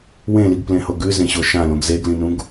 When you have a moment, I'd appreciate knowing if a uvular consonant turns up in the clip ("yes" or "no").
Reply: no